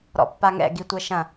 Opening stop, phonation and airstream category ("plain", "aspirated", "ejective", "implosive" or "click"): plain